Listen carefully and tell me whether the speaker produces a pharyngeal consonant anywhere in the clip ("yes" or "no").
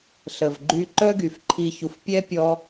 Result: no